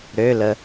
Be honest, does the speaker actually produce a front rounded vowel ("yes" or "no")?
yes